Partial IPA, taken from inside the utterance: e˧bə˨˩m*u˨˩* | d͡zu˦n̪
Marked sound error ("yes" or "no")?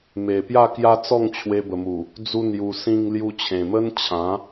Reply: no